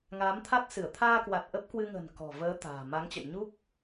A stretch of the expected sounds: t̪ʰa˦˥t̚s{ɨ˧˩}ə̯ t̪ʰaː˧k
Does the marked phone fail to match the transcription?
no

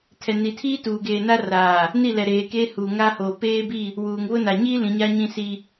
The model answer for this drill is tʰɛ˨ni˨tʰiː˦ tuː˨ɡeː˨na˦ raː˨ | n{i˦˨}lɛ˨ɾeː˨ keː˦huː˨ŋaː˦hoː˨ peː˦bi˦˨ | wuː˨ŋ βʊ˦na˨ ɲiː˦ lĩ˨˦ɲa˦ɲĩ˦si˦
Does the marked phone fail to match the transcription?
no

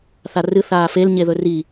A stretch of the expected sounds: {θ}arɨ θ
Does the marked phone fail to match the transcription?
no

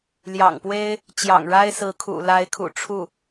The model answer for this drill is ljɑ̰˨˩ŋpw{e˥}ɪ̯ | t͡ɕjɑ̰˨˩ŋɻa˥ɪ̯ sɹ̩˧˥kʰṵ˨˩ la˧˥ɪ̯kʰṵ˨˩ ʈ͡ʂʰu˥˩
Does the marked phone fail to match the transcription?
no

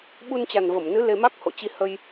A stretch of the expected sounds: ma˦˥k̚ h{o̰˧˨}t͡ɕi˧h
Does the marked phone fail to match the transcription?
no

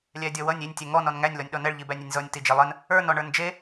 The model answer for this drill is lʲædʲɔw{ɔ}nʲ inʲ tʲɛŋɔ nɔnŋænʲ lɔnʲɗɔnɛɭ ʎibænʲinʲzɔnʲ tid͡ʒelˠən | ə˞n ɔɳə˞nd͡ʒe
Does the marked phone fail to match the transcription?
yes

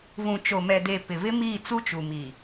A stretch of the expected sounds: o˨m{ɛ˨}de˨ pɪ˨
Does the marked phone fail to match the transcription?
no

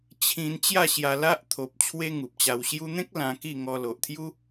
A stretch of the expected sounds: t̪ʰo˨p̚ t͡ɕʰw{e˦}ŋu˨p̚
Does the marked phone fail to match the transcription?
no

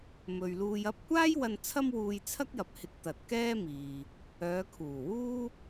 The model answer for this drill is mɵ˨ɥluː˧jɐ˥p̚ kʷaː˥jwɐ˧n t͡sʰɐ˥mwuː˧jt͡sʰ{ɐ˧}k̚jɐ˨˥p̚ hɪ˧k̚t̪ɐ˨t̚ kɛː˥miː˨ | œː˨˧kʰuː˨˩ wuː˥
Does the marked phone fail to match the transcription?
yes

